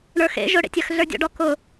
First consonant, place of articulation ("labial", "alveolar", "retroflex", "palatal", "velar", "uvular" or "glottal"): retroflex